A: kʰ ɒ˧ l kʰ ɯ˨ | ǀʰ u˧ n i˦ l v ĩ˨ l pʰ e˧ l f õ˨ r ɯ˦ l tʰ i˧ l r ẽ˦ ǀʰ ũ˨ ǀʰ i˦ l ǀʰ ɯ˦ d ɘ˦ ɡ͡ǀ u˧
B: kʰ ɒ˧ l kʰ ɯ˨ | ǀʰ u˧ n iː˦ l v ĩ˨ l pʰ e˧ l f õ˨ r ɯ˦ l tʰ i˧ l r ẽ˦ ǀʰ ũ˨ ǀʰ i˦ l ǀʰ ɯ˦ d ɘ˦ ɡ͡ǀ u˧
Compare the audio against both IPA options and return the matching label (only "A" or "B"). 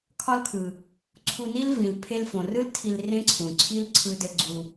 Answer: A